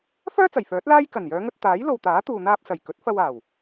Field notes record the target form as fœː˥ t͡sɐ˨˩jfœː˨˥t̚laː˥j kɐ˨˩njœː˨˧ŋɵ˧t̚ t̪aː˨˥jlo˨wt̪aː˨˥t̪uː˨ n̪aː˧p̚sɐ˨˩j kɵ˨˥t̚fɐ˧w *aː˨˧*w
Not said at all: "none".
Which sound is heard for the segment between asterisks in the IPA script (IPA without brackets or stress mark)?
aː˨˩